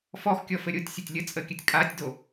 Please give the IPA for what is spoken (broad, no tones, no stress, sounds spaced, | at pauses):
f ɔ x kʲ ɔ f ɘ ɾʲ o tʲ sʲ ə tʲ lʲ ə t͡sʼ ə kʲ ɘ tʲ kʼ a tʲ d o